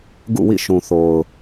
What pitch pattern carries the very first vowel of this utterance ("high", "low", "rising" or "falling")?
falling